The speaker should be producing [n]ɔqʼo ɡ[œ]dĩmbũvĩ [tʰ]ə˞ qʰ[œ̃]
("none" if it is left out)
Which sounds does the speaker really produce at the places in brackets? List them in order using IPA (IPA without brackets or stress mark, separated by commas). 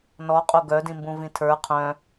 n, œ, tʰ, œ̃